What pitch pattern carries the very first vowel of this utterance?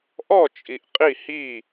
falling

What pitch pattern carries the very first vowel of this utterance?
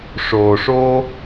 low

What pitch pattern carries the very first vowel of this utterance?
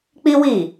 high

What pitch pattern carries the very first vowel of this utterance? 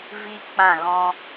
high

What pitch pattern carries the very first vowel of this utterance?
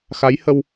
rising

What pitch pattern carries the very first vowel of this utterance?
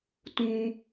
low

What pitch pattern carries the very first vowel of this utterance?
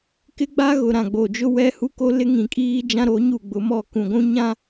high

